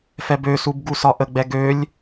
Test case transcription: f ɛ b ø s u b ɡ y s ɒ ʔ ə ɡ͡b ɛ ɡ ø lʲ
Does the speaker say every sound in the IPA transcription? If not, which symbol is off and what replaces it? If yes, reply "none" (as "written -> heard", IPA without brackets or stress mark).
y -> u